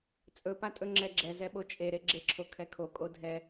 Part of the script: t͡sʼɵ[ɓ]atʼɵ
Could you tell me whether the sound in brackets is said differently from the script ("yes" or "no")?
yes